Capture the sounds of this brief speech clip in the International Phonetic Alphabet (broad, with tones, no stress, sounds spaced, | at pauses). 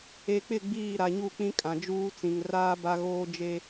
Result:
e˨ k͡p ɪ˦˨ ɡ͡b iː˦˨ ɾ a˨ ɲ u˦˨ k͡p ĩ˦ kʼ ã˨ d͡ʒ uː˦ t͡s ĩ˨ ŋ r aː˦ b a˦ ɣ oː˦ d͡ʒ e˦